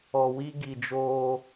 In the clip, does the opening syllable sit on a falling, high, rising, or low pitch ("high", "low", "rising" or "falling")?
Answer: low